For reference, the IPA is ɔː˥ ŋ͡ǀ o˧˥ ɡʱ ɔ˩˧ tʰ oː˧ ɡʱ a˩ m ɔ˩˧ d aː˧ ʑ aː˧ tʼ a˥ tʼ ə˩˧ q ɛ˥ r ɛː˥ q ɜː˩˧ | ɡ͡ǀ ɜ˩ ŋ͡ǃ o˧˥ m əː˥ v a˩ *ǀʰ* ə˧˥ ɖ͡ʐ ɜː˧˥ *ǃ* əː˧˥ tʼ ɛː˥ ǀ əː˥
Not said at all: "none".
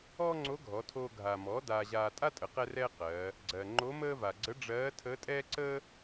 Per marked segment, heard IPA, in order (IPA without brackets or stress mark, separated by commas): ɡ͡ǀ, tʰ